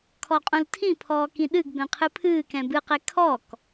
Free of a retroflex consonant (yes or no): yes